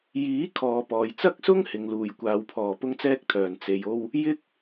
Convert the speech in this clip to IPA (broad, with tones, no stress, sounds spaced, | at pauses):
j iː˨˥ kʰ ɔː˧ p ɔː˧ j t͡s ɐ˥ k̚ s ʊ˥ ŋ h ɪ˨˧ ŋ l uː˨ j kʷ aː˧ w pʰ ɔː˨ p ʊ˥ ŋ t͡s ɛː˥ k̚ t̪ʰ œː˨ n t͡s e˧ j o˥ w | j ɪ˥ k̚